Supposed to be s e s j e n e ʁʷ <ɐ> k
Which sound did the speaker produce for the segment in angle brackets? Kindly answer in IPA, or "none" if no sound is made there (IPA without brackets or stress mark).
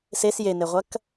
ɐ